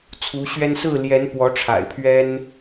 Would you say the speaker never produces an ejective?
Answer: yes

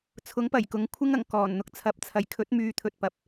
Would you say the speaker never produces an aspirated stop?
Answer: no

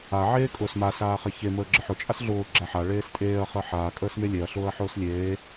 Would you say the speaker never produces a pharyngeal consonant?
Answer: no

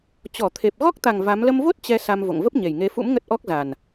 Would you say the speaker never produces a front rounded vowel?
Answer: yes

